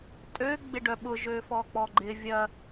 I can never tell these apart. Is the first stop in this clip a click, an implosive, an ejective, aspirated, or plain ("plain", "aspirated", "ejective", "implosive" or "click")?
ejective